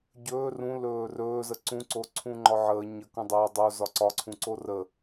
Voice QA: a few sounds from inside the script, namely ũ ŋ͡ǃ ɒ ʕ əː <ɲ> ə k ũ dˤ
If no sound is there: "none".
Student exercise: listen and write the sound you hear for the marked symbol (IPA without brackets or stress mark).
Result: ɲ